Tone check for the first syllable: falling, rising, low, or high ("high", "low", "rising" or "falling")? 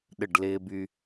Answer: falling